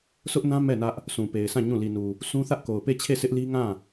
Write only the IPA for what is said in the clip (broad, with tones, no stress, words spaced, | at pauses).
sʊ˦ʔnã˦ mɛ˦˨ nä˦ʔ | sũ˨pe˨ɪ̯sã˦˨ ɲũ˦˨ li˨nu˨ | sʰũ˦ θä˦ʔko˨ʊ̯pe˦˨t͡ɕʰe˦˨ sʰɪ˦ʔli˦ ŋã˦˨